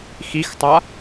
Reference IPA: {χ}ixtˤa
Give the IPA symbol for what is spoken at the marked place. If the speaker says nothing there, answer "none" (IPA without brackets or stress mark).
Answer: x